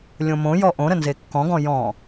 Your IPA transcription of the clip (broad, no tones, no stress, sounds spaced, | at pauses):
lʲ õ m õ j ɔ ʔ õ ɾ ə n z e kː ɔ̃ ɡ ɔ̃ j ɔ̃